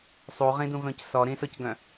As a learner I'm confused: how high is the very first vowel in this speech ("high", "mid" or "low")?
high